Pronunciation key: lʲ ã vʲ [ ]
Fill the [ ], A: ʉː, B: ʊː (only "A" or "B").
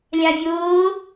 B